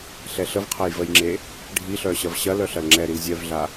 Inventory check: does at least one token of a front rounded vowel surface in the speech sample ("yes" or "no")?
yes